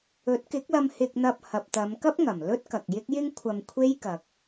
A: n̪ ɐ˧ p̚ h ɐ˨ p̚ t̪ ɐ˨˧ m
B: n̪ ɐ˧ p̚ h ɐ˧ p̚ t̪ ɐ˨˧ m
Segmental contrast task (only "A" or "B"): A